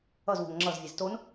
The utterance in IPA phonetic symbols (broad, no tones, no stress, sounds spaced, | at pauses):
ʌ z w o̤ ŋ ŋ͡ǁ ʌ z vʲ e z t o n